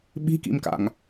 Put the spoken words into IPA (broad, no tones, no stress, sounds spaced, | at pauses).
ɓ i̤ k ḭ m k a̰ ŋ